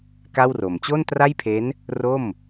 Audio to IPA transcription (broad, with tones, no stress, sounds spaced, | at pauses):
k a˥˩ w r o˨˩ m t͡ɕ o˥˩ n t r a˥˩ j pʰ e˦˥ n | r o˥˩ m